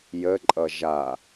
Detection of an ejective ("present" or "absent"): present